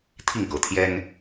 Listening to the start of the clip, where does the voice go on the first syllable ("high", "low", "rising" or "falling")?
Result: falling